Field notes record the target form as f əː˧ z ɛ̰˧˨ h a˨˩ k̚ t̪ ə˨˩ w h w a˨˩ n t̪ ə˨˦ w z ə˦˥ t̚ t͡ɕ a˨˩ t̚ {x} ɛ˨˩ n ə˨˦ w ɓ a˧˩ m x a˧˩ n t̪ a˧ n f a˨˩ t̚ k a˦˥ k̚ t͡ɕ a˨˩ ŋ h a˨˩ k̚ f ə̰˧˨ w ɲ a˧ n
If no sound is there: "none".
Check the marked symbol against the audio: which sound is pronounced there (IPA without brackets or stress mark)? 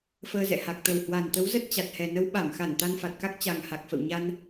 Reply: h